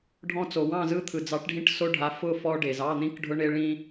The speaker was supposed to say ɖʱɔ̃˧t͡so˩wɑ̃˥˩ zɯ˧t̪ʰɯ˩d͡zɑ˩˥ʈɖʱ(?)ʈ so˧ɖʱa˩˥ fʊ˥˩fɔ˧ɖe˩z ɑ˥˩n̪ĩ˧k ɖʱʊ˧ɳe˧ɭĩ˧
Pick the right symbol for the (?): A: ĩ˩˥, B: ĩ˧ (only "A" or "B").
B